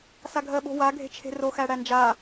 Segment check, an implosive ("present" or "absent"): present